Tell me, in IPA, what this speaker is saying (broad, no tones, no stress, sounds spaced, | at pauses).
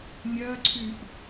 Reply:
nʲ ɜ ǀʰ y ʔ